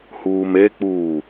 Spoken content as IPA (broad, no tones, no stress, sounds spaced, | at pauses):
h uː m e k͡p uː